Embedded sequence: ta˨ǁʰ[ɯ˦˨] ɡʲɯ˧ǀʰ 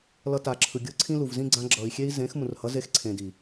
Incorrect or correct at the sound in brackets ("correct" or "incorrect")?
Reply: incorrect